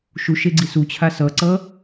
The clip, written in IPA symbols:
ʃ u ʃ e ɡ͡ǀ i s u t͡ɕʰ a s ʌ ǀ ʌ

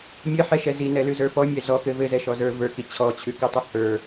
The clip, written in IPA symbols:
mʲ ɘ ħ ɛ ʃ ɛ z i n ɛ l ʉ z ə˞ p ɔ mʲ ɛ z ɔ k ɘ v ɘ z ɛ ʃ ɔ z ə˞ v ə˞ k i t͡ɕʰ ɔ t͡ɕʰ ʉ k ʉ tˤ ɘ h ə˞

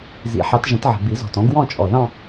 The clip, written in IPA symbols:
z ḭ˨˩˦ ħ ɑ˨˦ t ʒ ə̃˨˦ t ʕ ə̤˨˩ b i˨˩˦ z ɔ̤˨˩ t ɔ̃˨˦ ɡ w ɔ̃˥˧ t͡ʃʼ ɔ˨˩ ð ɑ̃˥˧

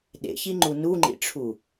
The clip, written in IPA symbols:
ɗ ḛ ç i ŋ͡ǃ u n u ŋ͡ǃ ḭ ʈ͡ʂʰ u

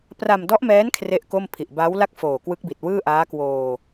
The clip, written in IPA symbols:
p r a˧ m d ɔ˦˥ ʔ m ɛː˦˥ n kʰ r e˥˩ ʔ k o˥˩ m pʰ i˨˩ ʔ b a˦˥ w l a˥˩ k̚ f oː˨˩ k w ɯ˦˥ k̚ b i˨˩ t̚ w ɯː˥˩ ʔ aː˦˥ k w oː˧

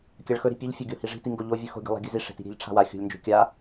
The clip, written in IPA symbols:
kʲ a ɭ x ɵ ɾ i̤ pʲ ʉ ʎ fʲ ɵ ɡʲ o h i ʐ i̤ t i ŋ ɡ o ʎ o vʲ ʉ x o̤ ɡʲ ṳ lˠ a̤ ɡʲ ɨ z i ʂ e̤ t i̤ ɾʲ e̤ ʎ ʈ͡ʂʰ a̤ w a xʲ ṳ lʲ n d͡ʒ o̤ kʲ a

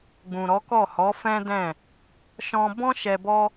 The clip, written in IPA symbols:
ɡ͡b ũ˨ ɾ ɔ˨˦ k ɔ˦˨ h ɔ˨˦ f ɛ̃˦ d ɛ̃˦˨ | ʃ ɔ̃˧ b ɔ̃˦ ʃ ɛ˧ b ɔ˦

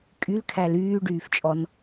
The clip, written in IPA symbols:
kʼ y l kʰ æ l yː ɖ yː f t͡ʃʼ ɔ n

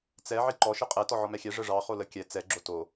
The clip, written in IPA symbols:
t͡s ɛ ʕ i ǃ ɔ ʃ i qʼ ɛ t ɔ ʕ ɔ m ɛ xʲ ɛ ʐ ə ʐ ɑ χ o l ə kʲ ɛ t͡s ɛ ɡ͡ǁ o t o

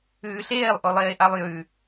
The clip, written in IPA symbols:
ʉː ɬ eː lˠ ʔ o lˠ eː ʔ a lˠ j ʉ

